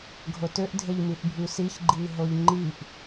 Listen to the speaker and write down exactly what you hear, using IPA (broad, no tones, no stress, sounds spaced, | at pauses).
ɡʱ o t ø ʔ dʱ e ʎ m i ʔ bʱ y s i ç ɡ͡ǃ i ɦ o ʎ ŋ͡ǃ i ʔ